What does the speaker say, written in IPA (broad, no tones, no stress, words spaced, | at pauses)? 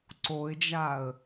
ǀoɪ̯d͡ʒaə̯